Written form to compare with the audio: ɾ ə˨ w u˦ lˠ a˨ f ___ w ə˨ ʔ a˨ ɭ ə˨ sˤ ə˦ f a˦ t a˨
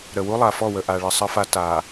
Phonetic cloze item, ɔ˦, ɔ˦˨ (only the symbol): ɔ˦˨